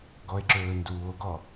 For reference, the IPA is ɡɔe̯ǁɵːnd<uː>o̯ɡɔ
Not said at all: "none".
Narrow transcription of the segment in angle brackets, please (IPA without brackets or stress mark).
uː